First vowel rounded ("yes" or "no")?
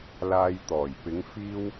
no